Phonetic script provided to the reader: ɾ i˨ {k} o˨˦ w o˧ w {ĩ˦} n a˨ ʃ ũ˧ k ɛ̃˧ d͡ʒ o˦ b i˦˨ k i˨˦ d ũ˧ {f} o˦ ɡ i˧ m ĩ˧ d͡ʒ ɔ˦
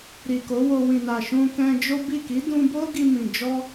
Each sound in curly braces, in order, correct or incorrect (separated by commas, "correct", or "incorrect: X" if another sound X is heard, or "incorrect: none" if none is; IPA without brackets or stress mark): correct, incorrect: ĩ˨, incorrect: b